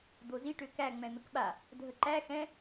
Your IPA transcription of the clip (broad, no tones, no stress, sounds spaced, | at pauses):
d̪ o z i ʈ ø k æ ŋ͡m ɛ̃ n̪ ə k ɓ a | dʱ ə ǃ æ x ɛ̃